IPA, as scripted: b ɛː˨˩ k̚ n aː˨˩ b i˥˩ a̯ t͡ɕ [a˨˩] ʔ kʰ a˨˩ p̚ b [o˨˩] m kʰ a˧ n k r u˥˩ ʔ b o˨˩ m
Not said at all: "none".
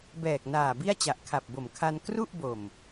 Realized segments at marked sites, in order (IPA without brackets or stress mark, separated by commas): a˨˩, o˨˩